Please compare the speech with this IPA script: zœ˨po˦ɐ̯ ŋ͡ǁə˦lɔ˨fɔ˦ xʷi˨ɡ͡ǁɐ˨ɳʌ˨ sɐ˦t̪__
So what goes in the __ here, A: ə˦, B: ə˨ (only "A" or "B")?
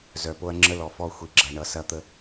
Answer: A